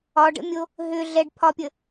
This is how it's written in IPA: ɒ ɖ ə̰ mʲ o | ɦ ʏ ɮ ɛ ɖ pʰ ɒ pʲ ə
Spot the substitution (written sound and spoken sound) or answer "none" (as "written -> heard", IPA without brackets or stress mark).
none